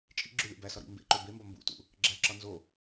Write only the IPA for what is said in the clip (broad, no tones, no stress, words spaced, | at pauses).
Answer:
t͡ʃʼḭɡ͡ǁu lʲæ̰bæsɒ ɾḭ mbḛǃo bembɒ mbṵtṵ | ɡ͡ǁæǁɒ nzo